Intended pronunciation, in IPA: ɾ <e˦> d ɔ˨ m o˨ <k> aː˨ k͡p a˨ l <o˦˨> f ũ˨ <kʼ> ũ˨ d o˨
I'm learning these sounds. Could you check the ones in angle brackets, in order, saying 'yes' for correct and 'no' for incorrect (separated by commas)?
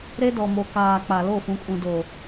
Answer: yes, yes, yes, yes